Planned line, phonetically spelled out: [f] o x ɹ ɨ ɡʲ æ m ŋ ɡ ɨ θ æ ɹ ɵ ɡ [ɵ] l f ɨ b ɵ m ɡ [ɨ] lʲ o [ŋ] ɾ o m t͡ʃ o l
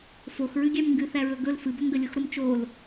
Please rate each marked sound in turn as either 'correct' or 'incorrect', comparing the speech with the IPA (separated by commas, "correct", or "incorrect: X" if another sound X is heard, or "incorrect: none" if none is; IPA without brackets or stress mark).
correct, correct, incorrect: ə, incorrect: x